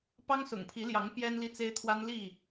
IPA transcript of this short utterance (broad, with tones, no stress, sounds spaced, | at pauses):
p ɑ˦ ŋ s ʊ̰˨˩ ŋ pʰ i˨˦ l j ɑ˨˦ ŋ p j ɛ˦ n l i˦ t͡s e˦ ɪ̯ t̪ʰ w a˦ n l i˥˨